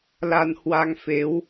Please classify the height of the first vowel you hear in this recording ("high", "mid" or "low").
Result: low